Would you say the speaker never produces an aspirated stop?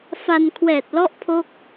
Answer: no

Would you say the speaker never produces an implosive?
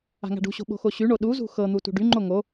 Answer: no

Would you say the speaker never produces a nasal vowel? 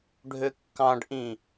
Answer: no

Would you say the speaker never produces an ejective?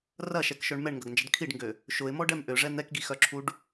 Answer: yes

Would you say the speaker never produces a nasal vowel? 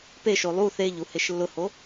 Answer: yes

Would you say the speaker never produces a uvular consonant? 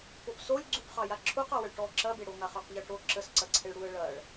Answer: no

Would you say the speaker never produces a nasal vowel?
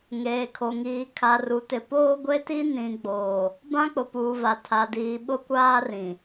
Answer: no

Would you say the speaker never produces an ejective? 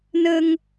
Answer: yes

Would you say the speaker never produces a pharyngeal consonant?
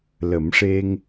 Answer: yes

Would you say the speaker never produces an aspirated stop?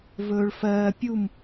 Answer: yes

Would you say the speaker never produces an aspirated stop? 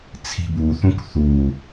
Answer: no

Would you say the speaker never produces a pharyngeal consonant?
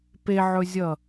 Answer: no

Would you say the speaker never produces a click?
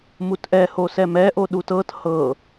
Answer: yes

